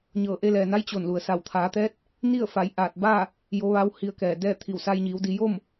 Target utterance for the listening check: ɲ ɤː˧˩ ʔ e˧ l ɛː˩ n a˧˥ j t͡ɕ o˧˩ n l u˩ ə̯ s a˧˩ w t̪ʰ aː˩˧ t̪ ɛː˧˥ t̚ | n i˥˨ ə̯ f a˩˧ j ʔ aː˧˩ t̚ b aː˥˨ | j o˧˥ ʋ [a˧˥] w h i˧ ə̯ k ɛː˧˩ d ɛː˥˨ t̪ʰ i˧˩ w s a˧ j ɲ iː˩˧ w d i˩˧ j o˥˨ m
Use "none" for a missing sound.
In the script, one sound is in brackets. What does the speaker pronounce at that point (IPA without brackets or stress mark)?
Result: a˧˥